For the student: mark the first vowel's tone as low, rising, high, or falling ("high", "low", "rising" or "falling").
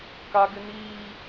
high